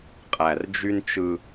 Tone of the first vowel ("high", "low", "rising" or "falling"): low